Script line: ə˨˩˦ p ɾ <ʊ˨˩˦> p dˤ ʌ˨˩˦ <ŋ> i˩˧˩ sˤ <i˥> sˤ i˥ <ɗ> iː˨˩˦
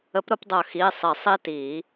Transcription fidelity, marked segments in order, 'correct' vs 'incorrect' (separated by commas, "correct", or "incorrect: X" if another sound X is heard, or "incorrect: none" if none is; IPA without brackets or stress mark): correct, incorrect: x, incorrect: i˨˩˦, incorrect: t